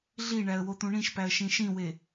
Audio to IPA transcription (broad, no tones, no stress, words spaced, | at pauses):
ɮiɳæə̯ wot̪ũɳĩʃpæə̯ ʃĩʃĩwe